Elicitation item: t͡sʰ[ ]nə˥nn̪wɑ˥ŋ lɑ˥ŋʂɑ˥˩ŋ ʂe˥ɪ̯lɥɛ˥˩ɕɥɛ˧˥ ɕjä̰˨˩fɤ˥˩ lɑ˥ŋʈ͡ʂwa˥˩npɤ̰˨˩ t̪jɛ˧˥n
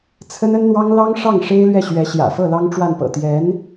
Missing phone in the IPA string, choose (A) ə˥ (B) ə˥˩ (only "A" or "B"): A